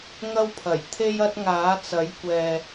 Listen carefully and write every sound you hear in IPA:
ŋ ɐ˧ w pʰ ɐ˨˩ j t̪ʰ e˧ j ɐ˧ t̚ ŋ aː˨˥ t͡s ɐ˨˥ j kʷ ɛː˨

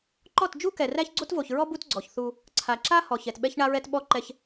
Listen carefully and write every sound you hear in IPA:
ǃ ɔ˦˨ t d͡ʒ u˦ k ɛ˨ r æ˦ ç ɡ͡ǀ o˦ t v o˨ ç ɹ ɔ˦ b u˦ t ɡ͡ǀ ɔ˨ ç θ u˦ | ǀʰ a˨ ǁ a˦ h ɔ˨ ç ɛ˨ t ɓ ɛ˦ ç ɳ a˦ ɹ ɛ˦ t ɓ ɔ˦ ǃ ɛ˦ ç

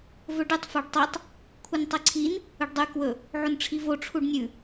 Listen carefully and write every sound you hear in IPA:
v ɵ ɖ ɨ tˤ f a ɖ tˤ i tˤ | kʷʰ ɨ n tˤ ɨ ǀʰ i n | ɵ ɖ dˤ ʉ k w ɵ | ʕ o n ʈ͡ʂʰ i v o ʈ͡ʂʰ u ɖ nʲ ʉ

